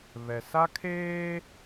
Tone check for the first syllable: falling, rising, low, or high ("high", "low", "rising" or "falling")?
low